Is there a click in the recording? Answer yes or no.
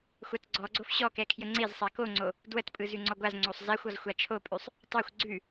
yes